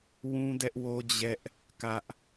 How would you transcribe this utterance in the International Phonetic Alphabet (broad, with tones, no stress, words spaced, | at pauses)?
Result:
wũ˦dɛ˦ʔwo˦ d͡ʑɛ˦ʔ | kä˦ʔ